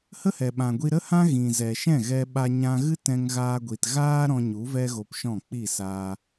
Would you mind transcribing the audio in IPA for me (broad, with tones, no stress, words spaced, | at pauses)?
hə˦hɛ˨ɓã˨ ɡʷi˧ɾə˦hã˦ ɣĩ˨ zɛ˨ʃɛ̃˦˨ɣɛ˧ɓa˧ ɲã˧ ɣɨ˦tɛ̃˧ŋ ɣaː˧ɡʷi˨tɣaː˦ ɾɔ̃˧ɲu˨˦ vɛ˦ɣo˧pʃɔ̃˦˨ k͡pi˦˨saː˧